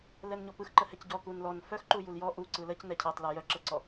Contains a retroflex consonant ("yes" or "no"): no